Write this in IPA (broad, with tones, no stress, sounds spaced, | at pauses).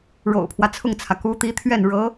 ɻ o̰˨˩ ʊ̯ pʰ w ä˦ t͡sʰ ʊ˥˩ ŋ t͡sʰ ä˩ k u˧˥ t̪ i˧˥ t̪ʰ ɥ ɛ˥˩ n ɻ ɤ˧˥